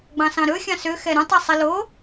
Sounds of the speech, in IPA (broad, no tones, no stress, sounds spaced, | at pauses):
ɡ͡b ɑ̃ s ɑ̃ ɾ ɵ xʲ ɑ̃ s ø x ɛ ɾ ũ tˤ ɛ sˤ i l o